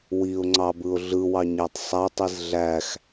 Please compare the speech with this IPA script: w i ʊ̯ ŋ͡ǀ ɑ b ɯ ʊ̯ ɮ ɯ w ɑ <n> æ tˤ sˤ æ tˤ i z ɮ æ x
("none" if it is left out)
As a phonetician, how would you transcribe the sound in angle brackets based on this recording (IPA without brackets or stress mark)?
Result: ɲ